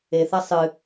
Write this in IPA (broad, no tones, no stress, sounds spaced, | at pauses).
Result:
e θ ɐ sˤ ɨ